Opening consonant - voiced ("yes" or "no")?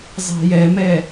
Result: yes